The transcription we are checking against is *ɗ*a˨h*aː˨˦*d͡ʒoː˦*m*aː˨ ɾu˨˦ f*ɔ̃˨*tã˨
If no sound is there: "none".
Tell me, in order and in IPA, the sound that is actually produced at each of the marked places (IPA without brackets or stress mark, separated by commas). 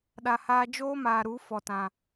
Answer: ɗ, aː˧, m, ɔ˨